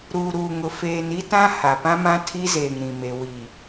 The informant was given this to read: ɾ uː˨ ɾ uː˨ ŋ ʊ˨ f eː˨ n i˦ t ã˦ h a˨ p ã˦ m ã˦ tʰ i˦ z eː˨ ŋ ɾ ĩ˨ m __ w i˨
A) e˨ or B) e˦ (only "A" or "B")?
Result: A